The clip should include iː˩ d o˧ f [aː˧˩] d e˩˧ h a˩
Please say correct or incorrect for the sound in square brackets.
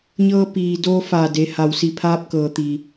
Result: correct